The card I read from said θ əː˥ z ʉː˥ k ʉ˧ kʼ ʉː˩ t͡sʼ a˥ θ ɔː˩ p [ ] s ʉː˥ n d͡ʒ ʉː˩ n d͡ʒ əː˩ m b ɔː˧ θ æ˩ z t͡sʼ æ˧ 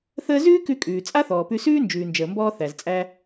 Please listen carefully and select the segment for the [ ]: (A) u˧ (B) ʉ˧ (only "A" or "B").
B